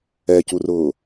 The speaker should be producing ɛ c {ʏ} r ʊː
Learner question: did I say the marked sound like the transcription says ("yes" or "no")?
no